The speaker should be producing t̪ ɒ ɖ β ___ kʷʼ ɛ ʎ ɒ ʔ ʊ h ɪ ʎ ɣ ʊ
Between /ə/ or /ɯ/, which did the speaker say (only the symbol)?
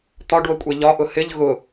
ə